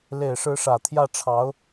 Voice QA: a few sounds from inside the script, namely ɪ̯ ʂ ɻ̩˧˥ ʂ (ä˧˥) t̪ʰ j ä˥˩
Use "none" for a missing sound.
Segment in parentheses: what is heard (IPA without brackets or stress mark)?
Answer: ä˨˩